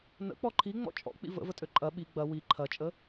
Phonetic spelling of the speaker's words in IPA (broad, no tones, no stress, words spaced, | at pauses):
nə̰k͡pɔ ǃʰiŋ͡mɔ̰ t͡ʃʼɔ̰k͡pḭ və̰vətʼø ǃʼɐ ɓi ɡ͡bɐ wi ǃʰɐt͡ʃʼə